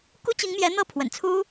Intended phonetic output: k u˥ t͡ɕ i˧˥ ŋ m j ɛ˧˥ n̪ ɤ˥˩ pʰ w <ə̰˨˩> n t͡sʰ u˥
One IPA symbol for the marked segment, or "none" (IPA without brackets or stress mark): ə̰˨˩